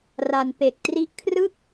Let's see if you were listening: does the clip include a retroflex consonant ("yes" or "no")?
no